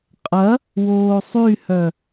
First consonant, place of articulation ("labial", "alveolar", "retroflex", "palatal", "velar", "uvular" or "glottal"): uvular